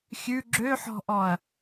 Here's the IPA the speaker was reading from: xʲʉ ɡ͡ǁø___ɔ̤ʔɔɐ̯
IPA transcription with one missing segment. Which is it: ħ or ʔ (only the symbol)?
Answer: ħ